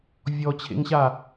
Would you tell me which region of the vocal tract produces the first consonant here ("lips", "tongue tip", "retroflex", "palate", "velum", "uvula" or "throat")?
lips